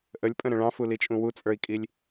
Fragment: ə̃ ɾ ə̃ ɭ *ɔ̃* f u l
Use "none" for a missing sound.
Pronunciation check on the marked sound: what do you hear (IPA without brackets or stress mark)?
ɑ̃